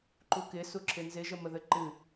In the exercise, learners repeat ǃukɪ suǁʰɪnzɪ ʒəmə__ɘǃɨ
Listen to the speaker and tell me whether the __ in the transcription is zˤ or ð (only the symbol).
ð